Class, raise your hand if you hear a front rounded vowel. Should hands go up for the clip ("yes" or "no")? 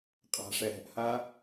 no